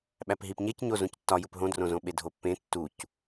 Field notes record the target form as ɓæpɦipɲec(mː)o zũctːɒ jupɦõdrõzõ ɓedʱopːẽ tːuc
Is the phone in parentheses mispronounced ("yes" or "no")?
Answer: yes